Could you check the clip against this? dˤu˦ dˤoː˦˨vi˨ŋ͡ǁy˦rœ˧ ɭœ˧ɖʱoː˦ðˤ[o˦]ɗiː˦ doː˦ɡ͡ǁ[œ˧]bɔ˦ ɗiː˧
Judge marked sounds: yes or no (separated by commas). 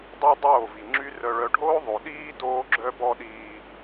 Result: no, no